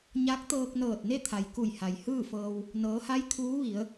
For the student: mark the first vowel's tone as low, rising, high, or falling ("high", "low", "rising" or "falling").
rising